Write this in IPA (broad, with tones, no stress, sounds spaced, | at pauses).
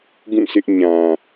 ɡ ũ˦˨ s ɪ˦ ʔ ɲ ã˨